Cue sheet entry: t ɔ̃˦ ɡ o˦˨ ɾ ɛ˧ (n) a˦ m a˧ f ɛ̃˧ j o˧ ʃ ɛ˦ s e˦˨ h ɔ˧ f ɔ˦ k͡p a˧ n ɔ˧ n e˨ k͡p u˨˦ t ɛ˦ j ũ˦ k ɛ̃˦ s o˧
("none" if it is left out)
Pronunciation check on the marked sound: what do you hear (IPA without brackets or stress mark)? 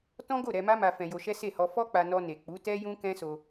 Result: m